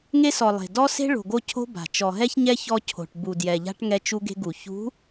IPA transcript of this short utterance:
ŋe˦sɔ˨ lˠe̤˨ dɔ˦se̤˦ ɭo̤˨ ɡo˦cʰo̤˦ba̤˨ t͡ʃɔ˨ɦɛ˦çɲɛ˦ çɔ˦cʰo̤˨ʈ bu˨djɛ˨ʎa̤˦ʈ ŋɛ˦t͡ʃu˦ɡe̤˦ɡu˨ çṳ˨˦

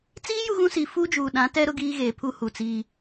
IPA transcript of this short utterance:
t͡siː˦ ju˦ɣũ˦si˨ fuː˦d͡ʒuː˨ ɗã˨˦tɛ˦ ɾʊ˦ɡiː˦ɣeː˨ pʰu˦hu˨t͡siː˦

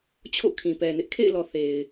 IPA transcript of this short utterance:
t͡ɕʰo̰˦˨kʰĩ˨pɛ˨nɪ˦ʔ kʰḛ˦˨ɪ̯lɔ˨ θe˨ɪ̯

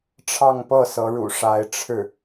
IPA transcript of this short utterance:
ʈ͡ʂʰɑ˥˧ŋpɤ˥˩ sɤ˧˥ɻṵ˨˩ʂa˧˥ɪ̯ʈ͡ʂʰɻ̩˥˩

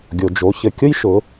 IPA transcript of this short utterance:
ɡʲo˩d͡ʒo˩˧çɘ˩kʲʊ˥j ʃʊ˩˧

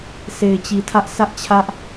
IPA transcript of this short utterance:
sʰe˨ɪ̯t͡ɕi˨tʰä˦ʔ sʰä˦ʔt͡ɕʰä˦ʔ

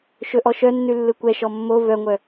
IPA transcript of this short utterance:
ʃɵʔɔʃœnːʉ lːɯkʷɛʃɔ mːo vœŋʷœ

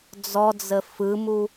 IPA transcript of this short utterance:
d͡zɔd͡zə fɯmu

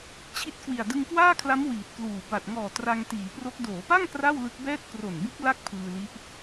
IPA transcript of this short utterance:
t͡ɕʰi˦˥t̚kwi˨˩a̯ dɯ˧ŋkwaː˥˩kʰla˦˥m wiː˨˩t̚kluː˨˩ ba˨˩t̚ ŋɔː˨˩ tra˧ŋtiː˩˦pro˦˥k̚ doː˩˦pa˥˩ŋ kra˥˩wlɯ˦˥k̚bɛː˥˩t̚ kro˨˩nbu˦˥k̚ la˥˩k̚pʰɯː˧li˦˥ʔ

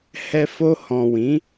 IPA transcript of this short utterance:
hɛ˧fo˧ hɔ̃˨wĩ˨˦

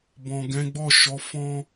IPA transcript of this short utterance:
bɔ̃˨ɡɛ̃˨˦ɡ͡bɔ˦˨ ʃɔ˨˦fɔ̃˦

